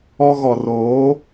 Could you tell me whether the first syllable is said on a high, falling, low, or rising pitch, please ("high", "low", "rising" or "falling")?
high